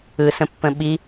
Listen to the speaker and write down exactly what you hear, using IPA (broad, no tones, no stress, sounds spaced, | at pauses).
ɯ s ə̃ pː ə̃ ɓ i